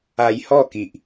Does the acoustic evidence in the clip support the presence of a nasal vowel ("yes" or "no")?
no